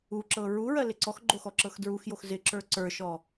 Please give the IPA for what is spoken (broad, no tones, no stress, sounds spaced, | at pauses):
u ǁ ɤ ɹ u ɹ ɜ l ɪ ǀ ɔ x ɡ͡ǃ o x ɔ ǁ ɤ x d ɹ u x j o x z ɪ ǁ ə˞ ǀ ə˞ ʃ ɔ